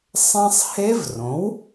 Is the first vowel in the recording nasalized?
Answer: yes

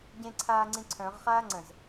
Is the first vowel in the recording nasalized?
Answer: yes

